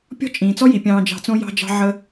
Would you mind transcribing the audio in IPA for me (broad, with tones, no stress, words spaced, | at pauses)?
pʲɔ̤˦t͡ʃʼĩː˨t͡sɔ˦ ji˨pʲɑ̃ː˧ d͡ʒɑ̤˧t͡sõ˦ jɑ̤˧d͡ʒɑ̤˧ ʕə˧